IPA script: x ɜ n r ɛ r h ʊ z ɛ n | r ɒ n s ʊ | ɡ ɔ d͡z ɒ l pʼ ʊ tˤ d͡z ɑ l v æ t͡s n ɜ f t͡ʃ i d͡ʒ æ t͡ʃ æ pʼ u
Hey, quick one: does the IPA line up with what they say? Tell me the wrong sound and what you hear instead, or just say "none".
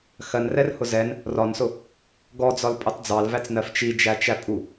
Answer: none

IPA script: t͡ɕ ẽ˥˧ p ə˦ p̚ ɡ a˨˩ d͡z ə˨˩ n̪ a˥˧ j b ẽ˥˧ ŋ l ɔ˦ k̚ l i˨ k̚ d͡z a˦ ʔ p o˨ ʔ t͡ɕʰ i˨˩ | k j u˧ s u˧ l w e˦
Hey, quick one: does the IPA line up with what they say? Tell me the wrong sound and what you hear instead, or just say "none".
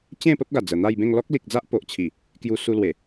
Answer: e˦ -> e˨˩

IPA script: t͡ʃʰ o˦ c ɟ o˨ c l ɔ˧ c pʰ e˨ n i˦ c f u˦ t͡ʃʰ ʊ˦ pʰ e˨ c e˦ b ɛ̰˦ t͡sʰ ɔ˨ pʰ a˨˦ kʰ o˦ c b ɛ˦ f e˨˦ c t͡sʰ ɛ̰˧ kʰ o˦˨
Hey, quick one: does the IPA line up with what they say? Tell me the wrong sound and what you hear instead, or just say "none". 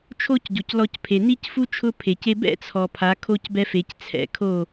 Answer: none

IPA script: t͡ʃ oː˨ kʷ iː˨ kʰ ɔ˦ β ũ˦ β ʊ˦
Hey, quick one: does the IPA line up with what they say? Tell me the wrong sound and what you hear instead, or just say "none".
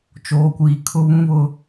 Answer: ɔ˦ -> ʊ˦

